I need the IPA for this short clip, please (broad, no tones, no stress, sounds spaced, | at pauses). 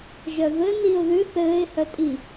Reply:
ʒ œ v ɘ n i ʊ̯ ð ʉ θ ɘː ɪ̯ h œ tʼ i